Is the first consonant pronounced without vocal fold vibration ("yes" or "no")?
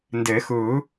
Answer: no